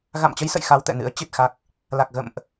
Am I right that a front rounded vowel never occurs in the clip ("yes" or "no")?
yes